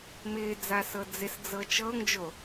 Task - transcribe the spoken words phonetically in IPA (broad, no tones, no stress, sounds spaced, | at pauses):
m ɪː d͡z a s ɤ d͡z ɪ s d͡z ɤ t͡ʃ ɤ ŋ d͡ʒ o